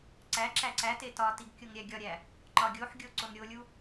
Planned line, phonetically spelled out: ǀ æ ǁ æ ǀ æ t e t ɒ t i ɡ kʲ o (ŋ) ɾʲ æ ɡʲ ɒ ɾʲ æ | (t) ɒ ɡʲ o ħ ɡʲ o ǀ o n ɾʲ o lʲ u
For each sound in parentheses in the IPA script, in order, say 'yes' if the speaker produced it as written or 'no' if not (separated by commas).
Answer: yes, no